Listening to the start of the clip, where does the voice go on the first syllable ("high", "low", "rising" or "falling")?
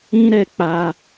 high